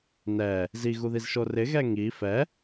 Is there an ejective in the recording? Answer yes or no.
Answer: no